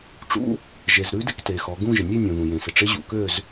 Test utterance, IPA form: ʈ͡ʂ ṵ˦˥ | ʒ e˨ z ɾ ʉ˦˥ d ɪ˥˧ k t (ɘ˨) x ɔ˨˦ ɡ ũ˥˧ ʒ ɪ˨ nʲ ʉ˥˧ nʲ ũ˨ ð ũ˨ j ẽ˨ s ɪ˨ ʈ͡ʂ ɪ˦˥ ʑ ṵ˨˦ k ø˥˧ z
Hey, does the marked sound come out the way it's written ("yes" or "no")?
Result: no